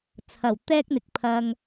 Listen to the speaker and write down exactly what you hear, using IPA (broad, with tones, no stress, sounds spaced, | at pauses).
t͡sʰ ɐ˨˩ w t̪ ɛː˥ k̚ n̪ ɪ˨ k̚ pʰ ɐ˧ ŋ